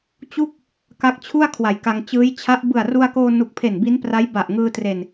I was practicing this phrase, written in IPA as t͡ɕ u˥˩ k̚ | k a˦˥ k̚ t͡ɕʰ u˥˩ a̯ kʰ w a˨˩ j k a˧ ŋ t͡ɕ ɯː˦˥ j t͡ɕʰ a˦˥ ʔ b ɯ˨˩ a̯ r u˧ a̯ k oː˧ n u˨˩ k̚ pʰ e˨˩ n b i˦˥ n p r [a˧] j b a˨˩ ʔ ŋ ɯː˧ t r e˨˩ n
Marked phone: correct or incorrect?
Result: incorrect: a˦˥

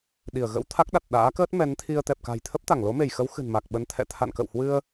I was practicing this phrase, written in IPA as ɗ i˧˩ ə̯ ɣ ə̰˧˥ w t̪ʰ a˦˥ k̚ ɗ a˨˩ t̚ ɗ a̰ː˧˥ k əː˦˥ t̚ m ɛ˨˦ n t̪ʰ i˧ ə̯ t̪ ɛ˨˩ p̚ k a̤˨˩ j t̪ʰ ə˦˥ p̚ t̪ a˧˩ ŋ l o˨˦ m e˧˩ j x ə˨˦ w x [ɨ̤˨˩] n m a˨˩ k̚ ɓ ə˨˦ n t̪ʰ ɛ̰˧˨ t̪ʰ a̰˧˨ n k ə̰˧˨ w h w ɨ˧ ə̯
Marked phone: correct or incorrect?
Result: correct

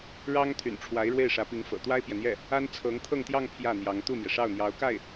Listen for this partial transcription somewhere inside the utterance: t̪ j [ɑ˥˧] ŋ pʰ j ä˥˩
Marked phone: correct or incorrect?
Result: correct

